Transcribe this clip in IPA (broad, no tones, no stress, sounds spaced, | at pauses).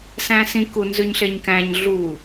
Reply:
s æ̃ː s ĩ k u n z ʉ ɲ ɬ e ɲ k æ̃ ɲ ɮ u